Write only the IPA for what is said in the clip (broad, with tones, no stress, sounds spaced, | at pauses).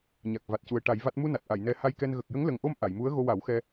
ɲ a˨˩ k̚ v a˨˩ t̚ c u˨˩ ə̯ ʈ a˨˩˦ j v a˦˥ t̚ m u˧ n a˨˩ t̚ ʔ a˨˩˨ j n ɛ˧ h a˧ j k ɛ˧ n ɣ ə˨˩ k̚ j ə˧˥ ŋ l ə˨˩ ŋ ʔ o˧ m ʔ a˨˩˨ j m u˧˥ ə̯ ɣ o˧ w a˨˩˦ w x ɛ˧